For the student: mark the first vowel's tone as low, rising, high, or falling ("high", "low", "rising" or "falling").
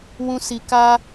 high